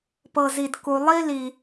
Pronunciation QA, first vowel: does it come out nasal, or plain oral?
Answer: oral